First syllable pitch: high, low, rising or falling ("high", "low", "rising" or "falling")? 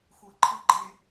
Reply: low